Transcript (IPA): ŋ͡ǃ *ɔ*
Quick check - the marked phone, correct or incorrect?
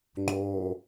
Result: incorrect